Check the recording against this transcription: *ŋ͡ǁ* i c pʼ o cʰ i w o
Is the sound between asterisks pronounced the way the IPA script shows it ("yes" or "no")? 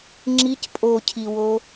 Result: yes